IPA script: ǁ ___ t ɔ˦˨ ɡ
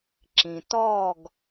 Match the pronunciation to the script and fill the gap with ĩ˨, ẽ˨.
ĩ˨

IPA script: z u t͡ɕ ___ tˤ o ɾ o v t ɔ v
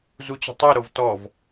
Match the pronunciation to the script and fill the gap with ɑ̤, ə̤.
ə̤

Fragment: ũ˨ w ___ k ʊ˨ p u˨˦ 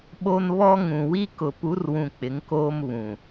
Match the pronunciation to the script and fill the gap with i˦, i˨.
i˦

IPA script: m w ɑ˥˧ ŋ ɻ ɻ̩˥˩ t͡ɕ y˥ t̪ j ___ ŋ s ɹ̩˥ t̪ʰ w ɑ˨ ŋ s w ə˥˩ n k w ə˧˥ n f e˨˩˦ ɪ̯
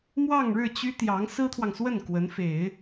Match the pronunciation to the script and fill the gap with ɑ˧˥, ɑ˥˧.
ɑ˧˥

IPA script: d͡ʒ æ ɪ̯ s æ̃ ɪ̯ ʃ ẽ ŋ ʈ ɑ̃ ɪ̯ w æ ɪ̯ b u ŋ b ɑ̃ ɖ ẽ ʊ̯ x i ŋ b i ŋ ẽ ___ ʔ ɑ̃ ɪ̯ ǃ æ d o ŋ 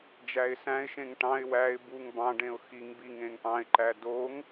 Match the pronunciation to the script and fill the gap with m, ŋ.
ŋ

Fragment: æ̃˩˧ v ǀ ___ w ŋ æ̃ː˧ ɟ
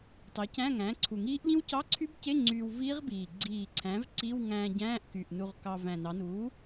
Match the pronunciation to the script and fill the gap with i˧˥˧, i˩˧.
i˧˥˧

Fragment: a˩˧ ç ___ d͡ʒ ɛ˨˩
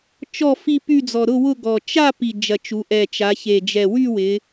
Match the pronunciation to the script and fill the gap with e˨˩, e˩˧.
e˨˩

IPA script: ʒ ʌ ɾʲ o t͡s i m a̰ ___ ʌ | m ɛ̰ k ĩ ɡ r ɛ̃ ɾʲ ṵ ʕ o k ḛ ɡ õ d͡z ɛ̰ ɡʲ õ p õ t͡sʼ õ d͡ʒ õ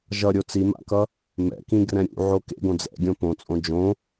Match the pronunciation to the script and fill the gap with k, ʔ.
k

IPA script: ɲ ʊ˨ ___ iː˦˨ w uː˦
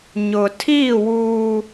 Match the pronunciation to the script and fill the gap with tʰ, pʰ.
tʰ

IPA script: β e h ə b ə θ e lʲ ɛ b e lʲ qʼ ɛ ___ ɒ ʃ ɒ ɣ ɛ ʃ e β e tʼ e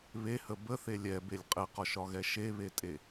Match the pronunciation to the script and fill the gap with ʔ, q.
q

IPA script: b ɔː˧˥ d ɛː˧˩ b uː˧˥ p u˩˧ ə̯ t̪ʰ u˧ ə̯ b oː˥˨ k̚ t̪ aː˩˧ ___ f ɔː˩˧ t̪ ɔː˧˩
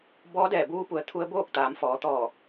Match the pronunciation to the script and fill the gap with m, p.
m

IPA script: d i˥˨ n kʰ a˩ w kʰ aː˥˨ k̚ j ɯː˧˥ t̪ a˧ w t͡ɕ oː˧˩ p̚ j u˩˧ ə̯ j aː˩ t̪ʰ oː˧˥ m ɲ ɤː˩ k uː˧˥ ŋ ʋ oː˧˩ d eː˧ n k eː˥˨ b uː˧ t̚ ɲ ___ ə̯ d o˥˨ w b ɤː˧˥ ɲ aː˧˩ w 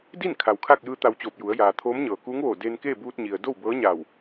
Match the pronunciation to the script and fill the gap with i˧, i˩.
i˩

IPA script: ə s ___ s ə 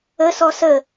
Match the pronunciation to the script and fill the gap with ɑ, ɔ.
ɔ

